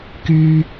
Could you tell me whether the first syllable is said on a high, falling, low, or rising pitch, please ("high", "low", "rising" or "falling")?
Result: high